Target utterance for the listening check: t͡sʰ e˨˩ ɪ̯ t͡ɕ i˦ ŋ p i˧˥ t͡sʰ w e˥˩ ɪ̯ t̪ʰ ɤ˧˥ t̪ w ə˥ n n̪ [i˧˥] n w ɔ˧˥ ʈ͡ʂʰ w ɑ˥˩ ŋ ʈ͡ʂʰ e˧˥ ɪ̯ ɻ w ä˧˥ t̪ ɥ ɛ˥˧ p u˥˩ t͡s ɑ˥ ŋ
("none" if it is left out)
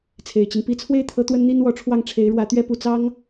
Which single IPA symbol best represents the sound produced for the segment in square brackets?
i˥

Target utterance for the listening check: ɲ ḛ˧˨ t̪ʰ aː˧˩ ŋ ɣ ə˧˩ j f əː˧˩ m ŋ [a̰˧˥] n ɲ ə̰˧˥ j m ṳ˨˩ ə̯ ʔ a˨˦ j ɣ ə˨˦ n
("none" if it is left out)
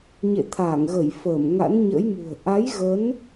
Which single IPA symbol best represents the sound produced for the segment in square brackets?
a̰˧˥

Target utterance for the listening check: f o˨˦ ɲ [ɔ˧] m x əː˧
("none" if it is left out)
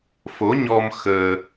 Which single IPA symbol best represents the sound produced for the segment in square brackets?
ɔ˧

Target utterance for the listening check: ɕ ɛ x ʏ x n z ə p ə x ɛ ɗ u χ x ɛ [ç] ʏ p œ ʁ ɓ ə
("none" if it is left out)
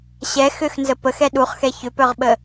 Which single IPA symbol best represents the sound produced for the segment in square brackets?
ç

